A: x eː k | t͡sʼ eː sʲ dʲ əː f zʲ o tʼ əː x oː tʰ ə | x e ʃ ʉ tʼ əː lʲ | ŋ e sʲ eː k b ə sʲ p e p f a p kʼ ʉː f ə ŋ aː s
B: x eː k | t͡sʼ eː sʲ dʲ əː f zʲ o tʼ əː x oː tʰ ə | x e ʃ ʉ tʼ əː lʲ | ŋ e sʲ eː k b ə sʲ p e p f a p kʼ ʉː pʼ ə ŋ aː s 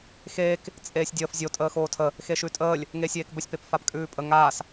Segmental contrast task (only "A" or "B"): B